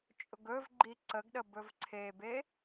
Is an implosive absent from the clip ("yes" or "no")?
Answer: no